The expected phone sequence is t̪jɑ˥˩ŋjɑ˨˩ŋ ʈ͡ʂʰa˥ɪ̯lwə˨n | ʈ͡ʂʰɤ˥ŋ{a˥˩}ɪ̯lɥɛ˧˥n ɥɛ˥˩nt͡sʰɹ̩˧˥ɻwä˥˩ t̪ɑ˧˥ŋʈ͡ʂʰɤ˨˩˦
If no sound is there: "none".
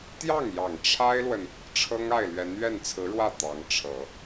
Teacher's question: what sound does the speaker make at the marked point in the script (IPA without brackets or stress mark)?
a˥˩